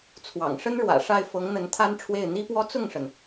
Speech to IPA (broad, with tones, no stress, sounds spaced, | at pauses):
t͡sʰ w ɑ̰˨˩ ŋ ʂ ə˥ n ɻ w ä̰˨˩ ʂ a˥˩ ɪ̯ f ɤ˧˥ ŋ n̪ ə˧˥ n t̪ʰ a˥ n ʈ͡ʂʰ w e˥˩ ɪ̯ n̪ i˥ p w ɔ˥ t͡s ʊ˥˩ ŋ ʂ ə˩ n